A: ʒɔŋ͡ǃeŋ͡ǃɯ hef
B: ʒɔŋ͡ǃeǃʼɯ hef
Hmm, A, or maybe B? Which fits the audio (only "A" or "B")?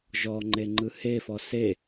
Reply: A